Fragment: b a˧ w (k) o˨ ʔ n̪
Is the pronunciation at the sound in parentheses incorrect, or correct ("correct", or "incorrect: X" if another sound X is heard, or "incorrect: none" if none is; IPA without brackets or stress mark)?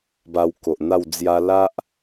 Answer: correct